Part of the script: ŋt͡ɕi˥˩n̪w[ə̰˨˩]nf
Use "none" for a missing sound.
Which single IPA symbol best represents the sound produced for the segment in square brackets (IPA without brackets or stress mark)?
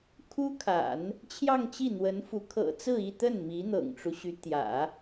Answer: ə˧˥